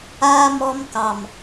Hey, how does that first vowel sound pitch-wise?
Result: high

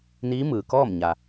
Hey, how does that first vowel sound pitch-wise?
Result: rising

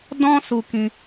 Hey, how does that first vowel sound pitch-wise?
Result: high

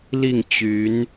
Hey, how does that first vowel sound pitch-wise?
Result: falling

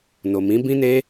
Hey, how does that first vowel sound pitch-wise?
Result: low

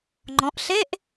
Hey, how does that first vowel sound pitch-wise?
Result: rising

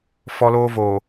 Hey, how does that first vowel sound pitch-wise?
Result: high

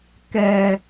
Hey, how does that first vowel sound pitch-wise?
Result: low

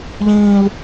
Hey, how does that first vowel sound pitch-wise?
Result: high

